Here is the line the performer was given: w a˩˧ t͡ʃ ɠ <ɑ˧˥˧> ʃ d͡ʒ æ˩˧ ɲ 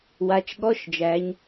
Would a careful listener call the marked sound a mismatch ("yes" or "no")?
yes